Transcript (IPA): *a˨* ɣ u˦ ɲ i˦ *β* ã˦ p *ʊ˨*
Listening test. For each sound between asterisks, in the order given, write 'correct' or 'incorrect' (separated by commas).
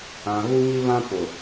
incorrect, correct, correct